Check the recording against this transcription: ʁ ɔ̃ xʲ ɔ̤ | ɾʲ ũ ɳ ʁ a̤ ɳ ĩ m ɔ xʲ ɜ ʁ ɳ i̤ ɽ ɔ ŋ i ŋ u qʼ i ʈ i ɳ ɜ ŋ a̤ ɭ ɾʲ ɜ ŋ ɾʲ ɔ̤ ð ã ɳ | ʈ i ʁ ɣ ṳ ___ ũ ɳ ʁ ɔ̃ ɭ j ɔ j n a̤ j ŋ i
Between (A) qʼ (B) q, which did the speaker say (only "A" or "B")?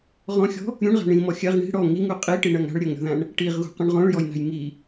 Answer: B